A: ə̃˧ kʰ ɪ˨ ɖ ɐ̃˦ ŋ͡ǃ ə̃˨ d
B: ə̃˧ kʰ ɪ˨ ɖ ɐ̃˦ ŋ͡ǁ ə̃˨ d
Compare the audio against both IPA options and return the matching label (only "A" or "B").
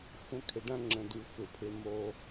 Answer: B